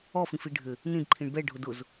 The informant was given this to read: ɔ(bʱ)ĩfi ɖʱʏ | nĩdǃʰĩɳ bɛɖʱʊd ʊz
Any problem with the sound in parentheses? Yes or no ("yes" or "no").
yes